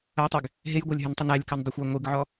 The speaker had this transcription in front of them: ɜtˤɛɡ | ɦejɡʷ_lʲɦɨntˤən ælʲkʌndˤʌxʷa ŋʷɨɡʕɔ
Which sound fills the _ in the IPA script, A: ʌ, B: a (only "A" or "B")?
B